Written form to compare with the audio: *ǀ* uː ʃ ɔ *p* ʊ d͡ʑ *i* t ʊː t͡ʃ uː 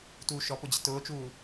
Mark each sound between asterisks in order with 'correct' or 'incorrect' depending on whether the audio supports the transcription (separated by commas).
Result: incorrect, correct, incorrect